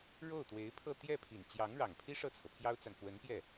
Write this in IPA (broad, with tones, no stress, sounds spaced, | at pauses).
ɻ o˥˩ ʊ̯ t̪ w e˧˥ ɪ̯ pʰ ɤ˥˧ t̪ j ɛ˥˩ pʰ i˨˩ n t͡ɕ j ɑ˧˥ ŋ ɻ ɑ˨˩ ŋ pʰ i˥ ʂ ɤ˥˩ t͡sʰ ɤ˩ pʰ j ɑ˥ ʊ̯ t͡s a˨ n k w ə˧˥ n p j ɛ˥˩